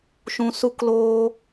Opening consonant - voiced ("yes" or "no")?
no